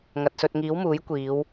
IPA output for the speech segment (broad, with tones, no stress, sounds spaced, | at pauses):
ŋ ɐ˨ t̚ s ɵ˧ t̚ ŋ iː˨˥ w m uː˨˥ j kʷ iː˨˧ w